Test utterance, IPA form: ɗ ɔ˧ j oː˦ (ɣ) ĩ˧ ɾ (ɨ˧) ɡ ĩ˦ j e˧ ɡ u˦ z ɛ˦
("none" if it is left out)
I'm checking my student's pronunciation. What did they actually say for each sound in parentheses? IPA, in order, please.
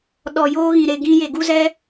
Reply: ɣ, e˧

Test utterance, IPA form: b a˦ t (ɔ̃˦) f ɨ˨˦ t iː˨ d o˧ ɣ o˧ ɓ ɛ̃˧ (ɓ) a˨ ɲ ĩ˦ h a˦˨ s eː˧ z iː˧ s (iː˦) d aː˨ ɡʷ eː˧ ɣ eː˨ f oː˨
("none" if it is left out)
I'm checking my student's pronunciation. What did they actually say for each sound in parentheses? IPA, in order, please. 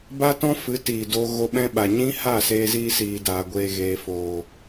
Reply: ɔ̃˦, ɓ, iː˨

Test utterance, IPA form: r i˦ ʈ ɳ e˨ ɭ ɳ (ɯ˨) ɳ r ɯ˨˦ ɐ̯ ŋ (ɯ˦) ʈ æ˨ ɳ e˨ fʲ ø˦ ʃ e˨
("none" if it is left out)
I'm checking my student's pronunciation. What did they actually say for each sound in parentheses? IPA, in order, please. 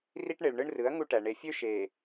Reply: ɯ˦, u˦

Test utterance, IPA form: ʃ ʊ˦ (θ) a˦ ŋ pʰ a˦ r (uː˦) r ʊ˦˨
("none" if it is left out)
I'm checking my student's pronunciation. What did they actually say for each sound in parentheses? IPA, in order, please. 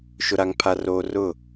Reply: ɾ, oː˦

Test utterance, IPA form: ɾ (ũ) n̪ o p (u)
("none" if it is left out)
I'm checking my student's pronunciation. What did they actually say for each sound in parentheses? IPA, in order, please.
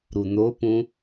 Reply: u, ũ

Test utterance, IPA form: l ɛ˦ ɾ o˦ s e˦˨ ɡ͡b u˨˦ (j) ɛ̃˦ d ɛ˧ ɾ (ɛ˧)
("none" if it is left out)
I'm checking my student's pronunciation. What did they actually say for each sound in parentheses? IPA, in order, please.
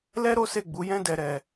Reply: j, ɛ˧

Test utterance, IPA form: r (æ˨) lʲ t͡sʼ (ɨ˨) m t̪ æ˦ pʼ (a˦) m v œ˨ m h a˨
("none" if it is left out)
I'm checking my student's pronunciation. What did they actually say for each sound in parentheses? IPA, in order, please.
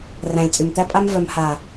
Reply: æ̃˨, y˨, a˦

